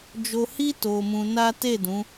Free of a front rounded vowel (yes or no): yes